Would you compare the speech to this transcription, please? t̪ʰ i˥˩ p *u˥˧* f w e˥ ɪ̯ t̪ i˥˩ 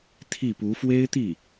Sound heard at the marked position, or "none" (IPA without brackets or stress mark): u˧˥